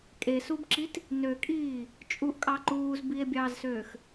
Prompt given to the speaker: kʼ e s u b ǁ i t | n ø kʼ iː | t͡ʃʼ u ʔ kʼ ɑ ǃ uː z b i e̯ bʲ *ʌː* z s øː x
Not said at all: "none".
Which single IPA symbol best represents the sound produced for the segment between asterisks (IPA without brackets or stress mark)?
ɑː